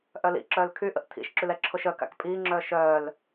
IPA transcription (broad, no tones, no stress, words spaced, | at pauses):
ʔœlḭǁœːl kʰyʔə̰ʔ tʰḭʃǁyl ɛǁʰoʃœka̰k pʼiːŋ͡ǁœː ʃœːl